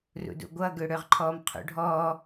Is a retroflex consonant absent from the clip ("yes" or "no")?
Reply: no